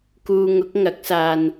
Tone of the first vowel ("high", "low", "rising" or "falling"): low